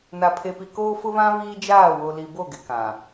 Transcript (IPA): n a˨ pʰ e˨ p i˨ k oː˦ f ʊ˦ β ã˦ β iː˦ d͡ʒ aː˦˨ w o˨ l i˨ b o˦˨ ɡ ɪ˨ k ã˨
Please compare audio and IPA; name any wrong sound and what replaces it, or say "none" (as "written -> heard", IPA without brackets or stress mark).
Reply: none